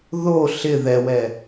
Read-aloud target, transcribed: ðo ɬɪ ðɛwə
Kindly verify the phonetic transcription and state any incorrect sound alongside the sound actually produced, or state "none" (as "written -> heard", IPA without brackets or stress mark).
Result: ə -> ɛ